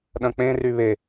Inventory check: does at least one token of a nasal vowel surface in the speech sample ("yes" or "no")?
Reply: yes